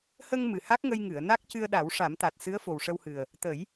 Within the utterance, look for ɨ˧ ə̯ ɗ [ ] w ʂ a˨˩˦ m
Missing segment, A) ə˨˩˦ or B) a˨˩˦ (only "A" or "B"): B